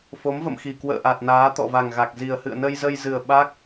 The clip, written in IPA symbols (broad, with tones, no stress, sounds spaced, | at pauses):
f o˨˦ m v ə̰˧˨ m x i˨˩ k w ə̰ː˧˨ ʔ a˨˩ t̚ n aː˨˦ t̪ ɔ̰˧˨ v a˨˩ ŋ ɣ a˨˩ k̚ z i˨˩ ə̯ h ɨ̰˧˨ ə̯ n ə˧ j z ə˧ j z ɨ˨˩ ə̯ ɓ a˦˥ k̚